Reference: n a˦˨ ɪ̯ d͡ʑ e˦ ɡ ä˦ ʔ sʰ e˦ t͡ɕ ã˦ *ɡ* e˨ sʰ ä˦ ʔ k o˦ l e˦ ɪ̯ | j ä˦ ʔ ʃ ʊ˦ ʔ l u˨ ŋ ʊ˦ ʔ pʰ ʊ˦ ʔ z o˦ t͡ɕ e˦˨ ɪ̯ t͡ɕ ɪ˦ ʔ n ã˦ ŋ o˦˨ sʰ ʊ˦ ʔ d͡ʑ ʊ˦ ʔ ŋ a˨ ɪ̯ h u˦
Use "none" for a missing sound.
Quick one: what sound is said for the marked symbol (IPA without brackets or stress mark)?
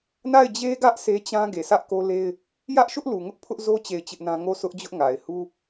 ɡ